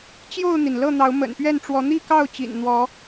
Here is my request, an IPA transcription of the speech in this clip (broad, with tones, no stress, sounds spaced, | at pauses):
t͡ɕ j o˥˨ ʊ̯ n̪ i˩ n l ɤ˥˨ n̪ ɑ˨˦ ʊ̯ m ə̰˨˩ n p ɥ ɛ˥˨ n ʈ͡ʂ w ɔ˨˦ n̪ i˥˨ k ɑ˥˨ ʊ̯ t͡ɕ ḭ˨˩ n n̪ w ɔ˨˦